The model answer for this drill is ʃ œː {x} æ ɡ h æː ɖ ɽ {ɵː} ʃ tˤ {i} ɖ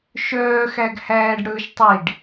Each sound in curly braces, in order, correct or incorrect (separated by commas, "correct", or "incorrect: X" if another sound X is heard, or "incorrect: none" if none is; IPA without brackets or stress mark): correct, correct, correct